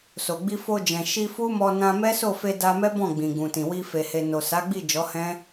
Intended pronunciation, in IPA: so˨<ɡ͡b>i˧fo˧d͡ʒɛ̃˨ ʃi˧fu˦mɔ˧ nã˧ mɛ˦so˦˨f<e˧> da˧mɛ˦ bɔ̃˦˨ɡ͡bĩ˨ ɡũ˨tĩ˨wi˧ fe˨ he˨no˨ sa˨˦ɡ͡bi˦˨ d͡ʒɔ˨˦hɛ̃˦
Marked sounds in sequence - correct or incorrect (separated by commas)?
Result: correct, correct